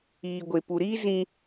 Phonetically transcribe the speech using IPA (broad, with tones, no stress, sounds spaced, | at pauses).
iː˨ ɡʷ e˨ p u˨ ɾ iː˦ z ĩ˦